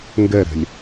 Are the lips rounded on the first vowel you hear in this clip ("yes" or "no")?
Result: no